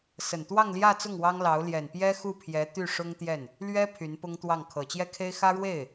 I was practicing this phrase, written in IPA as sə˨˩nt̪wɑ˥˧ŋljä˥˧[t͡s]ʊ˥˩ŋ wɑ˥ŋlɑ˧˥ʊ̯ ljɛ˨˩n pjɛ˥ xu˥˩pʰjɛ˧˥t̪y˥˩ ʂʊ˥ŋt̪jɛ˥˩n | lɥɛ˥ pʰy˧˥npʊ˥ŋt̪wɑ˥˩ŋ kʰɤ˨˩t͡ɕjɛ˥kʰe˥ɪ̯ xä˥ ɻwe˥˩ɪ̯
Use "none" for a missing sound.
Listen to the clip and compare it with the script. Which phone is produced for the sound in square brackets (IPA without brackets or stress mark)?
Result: t͡s